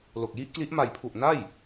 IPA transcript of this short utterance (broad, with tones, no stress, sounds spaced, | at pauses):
l o˨˩ k̚ j i˦˥ ʔ k l i˦˥ ʔ m a˨˩ j pʰ u˨˩ ʔ n a˥˩ j